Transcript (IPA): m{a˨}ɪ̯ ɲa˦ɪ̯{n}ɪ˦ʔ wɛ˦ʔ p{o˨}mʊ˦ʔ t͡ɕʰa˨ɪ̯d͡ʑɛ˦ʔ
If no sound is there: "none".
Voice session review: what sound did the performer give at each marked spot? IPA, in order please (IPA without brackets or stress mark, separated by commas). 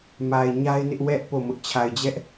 a˨, n, o˦˨